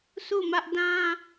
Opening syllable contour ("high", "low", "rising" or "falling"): falling